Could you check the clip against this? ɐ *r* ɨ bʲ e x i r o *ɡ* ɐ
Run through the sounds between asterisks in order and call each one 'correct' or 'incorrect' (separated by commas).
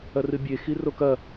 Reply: correct, incorrect